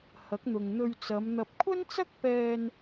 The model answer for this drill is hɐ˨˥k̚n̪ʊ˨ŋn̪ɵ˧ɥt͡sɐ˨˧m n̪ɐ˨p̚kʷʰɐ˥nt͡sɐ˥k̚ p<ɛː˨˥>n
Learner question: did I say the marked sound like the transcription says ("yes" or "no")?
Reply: no